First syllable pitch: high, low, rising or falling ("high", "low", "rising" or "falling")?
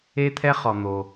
high